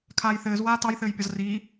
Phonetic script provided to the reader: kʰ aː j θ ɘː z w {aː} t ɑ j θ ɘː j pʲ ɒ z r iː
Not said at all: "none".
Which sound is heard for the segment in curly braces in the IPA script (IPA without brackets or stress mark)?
aː